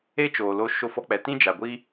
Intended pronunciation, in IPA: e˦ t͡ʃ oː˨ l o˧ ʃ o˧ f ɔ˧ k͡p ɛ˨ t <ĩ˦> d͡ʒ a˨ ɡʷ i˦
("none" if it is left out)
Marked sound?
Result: ĩ˦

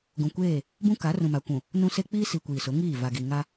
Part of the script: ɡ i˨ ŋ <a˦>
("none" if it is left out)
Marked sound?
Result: a˦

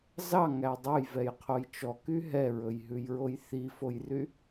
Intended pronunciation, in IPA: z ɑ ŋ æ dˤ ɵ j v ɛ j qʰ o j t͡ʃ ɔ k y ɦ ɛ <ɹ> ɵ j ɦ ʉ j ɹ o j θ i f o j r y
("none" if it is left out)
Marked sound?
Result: ɹ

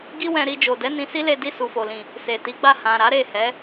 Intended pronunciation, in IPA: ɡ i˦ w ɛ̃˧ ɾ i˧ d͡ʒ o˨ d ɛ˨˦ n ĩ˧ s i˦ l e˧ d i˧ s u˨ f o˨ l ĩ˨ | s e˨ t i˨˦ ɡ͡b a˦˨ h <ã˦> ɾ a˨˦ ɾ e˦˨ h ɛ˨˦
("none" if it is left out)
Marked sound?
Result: ã˨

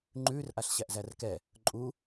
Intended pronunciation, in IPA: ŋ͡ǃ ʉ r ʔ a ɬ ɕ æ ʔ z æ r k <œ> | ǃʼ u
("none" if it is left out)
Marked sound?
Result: ɛ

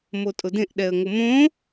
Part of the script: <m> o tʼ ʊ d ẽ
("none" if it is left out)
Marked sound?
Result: m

